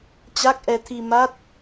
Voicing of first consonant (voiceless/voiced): voiceless